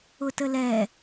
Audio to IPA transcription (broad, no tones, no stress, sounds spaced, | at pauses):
ʊ t ə l ɛ